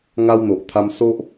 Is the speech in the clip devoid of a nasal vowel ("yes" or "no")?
yes